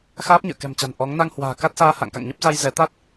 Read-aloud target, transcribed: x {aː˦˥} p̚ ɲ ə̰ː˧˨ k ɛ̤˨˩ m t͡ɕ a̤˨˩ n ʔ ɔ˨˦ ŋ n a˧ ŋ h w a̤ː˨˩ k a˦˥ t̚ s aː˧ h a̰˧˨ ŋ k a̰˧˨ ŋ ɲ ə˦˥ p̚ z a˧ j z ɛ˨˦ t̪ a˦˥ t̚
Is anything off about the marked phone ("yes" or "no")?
no